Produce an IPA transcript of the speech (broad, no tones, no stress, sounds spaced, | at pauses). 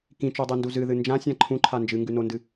k ĩ t͡ʃ o dˤ e n d u z ɨ ð ɨ n d͡ʒ ã sʲ ã ǃʰ ũ ǃʰ a n d͡ʒ ɨ ŋ ɡ ʉ n o n d ɨ